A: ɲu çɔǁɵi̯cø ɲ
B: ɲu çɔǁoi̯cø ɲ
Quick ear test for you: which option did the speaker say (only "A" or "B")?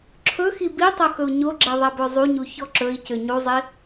A